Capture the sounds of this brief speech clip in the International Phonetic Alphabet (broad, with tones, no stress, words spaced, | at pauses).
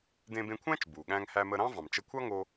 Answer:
dẽ˧bẽ˧kʷʰæ̃˥t͡ʃ bu˩ɠæ̃˧ŋ hæ˧mə˧ɾɑ̃˥ vɑ̃˩mt͡ʃə˧kʷʰɑ˥ŋo˧